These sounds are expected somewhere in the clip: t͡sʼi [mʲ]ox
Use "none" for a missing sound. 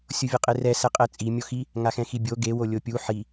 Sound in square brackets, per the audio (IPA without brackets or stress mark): mʲ